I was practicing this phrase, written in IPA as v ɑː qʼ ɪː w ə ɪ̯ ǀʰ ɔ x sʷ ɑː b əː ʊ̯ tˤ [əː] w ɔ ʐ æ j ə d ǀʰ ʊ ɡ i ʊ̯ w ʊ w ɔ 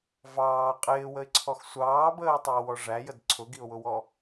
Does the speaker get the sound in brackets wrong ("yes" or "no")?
no